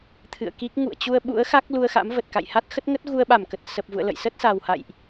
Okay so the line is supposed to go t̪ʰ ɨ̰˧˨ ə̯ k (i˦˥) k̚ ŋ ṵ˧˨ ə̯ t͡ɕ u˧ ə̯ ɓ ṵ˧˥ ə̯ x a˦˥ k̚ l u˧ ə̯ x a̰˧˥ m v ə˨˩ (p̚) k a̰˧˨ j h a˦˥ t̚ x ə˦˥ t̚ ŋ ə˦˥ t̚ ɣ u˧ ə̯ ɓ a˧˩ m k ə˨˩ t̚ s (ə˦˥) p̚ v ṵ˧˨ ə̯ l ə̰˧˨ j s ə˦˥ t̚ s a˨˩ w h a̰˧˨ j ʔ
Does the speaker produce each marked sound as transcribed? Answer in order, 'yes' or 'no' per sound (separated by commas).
yes, no, no